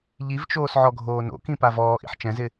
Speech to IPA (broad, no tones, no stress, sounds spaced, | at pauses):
ʎ i v t͡ʃ oː s ʕ ɔ ɡʱ oː n o̰ k ĩ p a v ɔː ʔ ḭ ħ t͡ʃ ɛ̃ z ɪ